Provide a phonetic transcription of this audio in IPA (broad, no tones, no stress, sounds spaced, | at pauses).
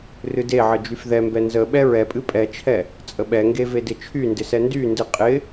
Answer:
r ɨ d e ʕ ə d͡ʒ y f ð ɛ m b ɛ n z ə ɓ ɛ ɹ ɛ pʼ ɨ pʼ ɛ t͡ʃʰ ɛ | t͡sʼ ə ɓ ɛ ŋ ɡ e v e d ɪ t͡ʃʰ y n d ɪ s ɛ n d y n d ɨ qʼ ɪ